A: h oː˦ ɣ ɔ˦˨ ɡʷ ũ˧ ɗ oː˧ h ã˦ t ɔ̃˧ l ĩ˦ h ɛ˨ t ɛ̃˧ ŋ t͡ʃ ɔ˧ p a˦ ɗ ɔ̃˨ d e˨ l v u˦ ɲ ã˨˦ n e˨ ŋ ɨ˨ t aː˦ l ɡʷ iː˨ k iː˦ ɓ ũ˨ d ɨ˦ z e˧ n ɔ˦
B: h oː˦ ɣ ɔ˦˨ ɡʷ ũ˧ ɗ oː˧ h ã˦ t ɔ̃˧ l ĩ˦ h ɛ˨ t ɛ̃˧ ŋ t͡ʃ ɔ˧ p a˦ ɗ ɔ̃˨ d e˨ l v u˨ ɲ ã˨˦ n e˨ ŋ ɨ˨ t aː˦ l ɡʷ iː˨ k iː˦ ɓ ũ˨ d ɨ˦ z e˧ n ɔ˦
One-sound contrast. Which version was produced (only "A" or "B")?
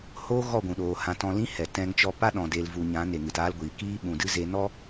B